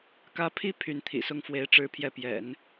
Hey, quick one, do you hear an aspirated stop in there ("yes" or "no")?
yes